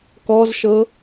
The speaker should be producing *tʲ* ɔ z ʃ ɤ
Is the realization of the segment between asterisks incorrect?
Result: yes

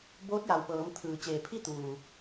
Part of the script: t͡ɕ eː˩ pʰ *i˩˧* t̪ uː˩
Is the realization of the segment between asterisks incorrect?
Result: yes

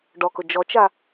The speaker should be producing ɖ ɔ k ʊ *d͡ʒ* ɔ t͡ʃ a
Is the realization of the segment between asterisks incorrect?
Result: no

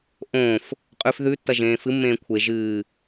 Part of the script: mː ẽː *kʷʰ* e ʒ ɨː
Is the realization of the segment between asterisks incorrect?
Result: no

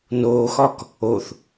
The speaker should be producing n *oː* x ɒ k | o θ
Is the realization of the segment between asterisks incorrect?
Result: no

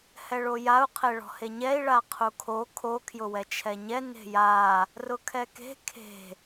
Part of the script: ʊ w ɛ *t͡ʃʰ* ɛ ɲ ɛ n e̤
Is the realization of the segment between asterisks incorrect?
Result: no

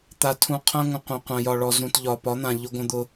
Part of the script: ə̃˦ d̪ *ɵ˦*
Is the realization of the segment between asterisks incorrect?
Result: yes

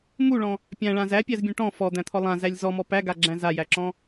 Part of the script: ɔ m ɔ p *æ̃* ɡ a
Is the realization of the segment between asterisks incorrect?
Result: yes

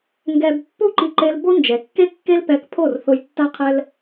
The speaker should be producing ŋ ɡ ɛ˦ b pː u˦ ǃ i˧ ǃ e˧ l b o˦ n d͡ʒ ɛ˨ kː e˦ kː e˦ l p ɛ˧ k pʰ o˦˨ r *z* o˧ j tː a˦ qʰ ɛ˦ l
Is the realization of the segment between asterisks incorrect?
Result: yes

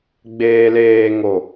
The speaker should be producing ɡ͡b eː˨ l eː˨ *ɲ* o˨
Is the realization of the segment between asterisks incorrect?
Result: yes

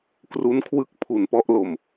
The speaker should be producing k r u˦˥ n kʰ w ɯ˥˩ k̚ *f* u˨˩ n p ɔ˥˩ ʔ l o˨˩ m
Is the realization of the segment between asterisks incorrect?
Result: yes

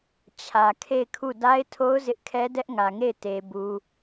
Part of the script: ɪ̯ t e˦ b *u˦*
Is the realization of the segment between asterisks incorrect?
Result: no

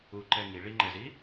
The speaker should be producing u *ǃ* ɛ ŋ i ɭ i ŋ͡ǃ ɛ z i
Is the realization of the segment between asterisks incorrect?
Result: no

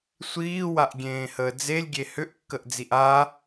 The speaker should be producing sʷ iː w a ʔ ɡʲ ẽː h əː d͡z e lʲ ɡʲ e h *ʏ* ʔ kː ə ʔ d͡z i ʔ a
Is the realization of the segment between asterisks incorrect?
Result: no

